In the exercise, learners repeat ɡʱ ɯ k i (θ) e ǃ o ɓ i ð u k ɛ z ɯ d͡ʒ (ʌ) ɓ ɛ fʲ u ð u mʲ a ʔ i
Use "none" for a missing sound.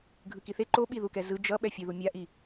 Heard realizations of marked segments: θ, ʌ

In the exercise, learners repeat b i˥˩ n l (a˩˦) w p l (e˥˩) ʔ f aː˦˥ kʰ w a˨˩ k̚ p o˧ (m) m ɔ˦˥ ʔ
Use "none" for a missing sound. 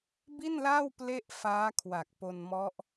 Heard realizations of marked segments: a˥˩, e˥˩, n

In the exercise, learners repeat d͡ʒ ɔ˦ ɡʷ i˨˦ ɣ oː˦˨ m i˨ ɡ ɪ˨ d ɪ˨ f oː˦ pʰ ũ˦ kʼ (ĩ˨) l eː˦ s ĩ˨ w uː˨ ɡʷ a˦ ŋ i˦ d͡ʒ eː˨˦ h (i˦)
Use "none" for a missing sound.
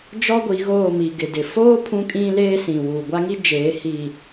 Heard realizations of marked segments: ĩ˦, i˨

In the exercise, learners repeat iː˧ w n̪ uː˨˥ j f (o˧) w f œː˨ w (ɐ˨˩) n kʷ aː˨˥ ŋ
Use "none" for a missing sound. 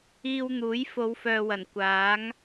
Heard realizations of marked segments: o˨˧, ɐ˨˩

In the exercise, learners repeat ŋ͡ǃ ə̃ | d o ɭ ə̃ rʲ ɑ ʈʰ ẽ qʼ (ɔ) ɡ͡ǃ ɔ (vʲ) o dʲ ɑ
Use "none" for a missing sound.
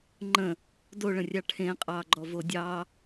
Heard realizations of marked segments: ɑ, v

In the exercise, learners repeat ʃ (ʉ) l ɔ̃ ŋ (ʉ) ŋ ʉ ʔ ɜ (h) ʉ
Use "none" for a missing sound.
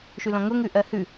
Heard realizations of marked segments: ʉ, ʊ, h

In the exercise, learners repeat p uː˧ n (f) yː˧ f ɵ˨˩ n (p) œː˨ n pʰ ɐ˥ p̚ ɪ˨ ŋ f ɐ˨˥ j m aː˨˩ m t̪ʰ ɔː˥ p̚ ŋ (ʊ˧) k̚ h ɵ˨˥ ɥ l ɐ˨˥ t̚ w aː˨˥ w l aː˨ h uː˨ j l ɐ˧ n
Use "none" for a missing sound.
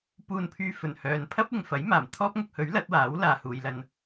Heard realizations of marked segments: pʰ, h, ʊ˧

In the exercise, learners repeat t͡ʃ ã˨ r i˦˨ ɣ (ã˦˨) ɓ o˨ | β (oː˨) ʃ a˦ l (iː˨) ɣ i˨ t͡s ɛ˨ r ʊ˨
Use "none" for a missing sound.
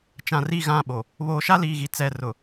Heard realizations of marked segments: ã˦˨, oː˨, iː˨

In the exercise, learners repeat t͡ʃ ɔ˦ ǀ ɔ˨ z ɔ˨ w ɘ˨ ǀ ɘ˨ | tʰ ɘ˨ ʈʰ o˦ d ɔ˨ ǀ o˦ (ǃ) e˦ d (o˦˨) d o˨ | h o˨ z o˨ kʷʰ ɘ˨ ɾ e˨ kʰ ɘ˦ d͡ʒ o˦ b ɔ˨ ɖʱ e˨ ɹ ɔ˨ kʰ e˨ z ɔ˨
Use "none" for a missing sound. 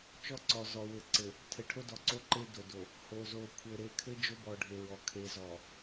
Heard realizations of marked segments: ǃ, o˨

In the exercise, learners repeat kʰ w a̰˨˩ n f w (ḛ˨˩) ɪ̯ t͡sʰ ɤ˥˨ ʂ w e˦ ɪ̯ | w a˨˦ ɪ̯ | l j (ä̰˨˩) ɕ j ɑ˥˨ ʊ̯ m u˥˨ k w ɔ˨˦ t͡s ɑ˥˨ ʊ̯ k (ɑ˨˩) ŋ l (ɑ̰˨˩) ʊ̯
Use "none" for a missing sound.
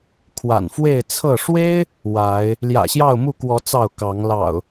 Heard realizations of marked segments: e˥˨, ä̰˨˩, ɑ˨˦, ɑ̰˨˩

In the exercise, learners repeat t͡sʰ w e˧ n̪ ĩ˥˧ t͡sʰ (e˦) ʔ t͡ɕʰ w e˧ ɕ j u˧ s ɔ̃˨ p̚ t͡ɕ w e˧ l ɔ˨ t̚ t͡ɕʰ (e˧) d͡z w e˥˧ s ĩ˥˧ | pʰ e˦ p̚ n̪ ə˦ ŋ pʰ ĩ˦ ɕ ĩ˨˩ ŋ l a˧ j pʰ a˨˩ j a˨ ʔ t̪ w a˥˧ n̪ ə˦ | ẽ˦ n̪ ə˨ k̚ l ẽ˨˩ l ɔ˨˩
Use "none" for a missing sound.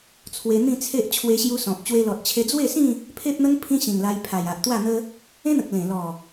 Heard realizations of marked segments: e˦, e˧

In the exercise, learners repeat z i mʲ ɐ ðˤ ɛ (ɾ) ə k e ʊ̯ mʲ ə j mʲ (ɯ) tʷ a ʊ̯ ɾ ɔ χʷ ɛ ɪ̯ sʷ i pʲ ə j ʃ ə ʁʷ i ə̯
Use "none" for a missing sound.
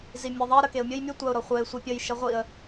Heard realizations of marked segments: ɾ, ɯ

